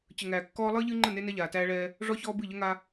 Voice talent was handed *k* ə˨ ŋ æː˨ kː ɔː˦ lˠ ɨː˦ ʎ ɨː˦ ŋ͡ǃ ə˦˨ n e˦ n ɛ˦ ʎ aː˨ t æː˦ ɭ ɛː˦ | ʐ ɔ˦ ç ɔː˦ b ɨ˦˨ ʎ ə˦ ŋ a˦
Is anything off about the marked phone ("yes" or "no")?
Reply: yes